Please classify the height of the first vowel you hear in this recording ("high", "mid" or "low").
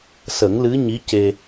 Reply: mid